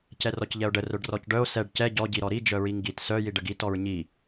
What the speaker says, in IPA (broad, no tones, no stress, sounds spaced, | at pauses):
c ɛ r ɔ c ʎ ɛ o̯ ɖ ə r œ ɖ r ɔ c ɖ œ o̯ s ɛ ɖ c ɛ ɟ ɔ ɟ i ɾ ɔ ɾ i d͡ʒ œ ɹ i ŋ ɡ i t s œ j i ɖ ə ɡ i t ɔ ɹ ɲ i